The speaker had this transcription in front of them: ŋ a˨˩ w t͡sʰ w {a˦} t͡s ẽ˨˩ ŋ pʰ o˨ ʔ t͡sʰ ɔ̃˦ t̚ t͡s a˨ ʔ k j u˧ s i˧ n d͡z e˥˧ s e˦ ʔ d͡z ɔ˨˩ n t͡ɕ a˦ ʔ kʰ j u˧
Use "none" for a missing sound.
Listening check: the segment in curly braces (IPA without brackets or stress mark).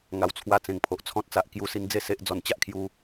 a˧